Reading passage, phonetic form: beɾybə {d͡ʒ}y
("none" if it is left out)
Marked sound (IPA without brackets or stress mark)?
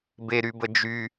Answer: d͡ʒ